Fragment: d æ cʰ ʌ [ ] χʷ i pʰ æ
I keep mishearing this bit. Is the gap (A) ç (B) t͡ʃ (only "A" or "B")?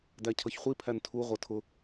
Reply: A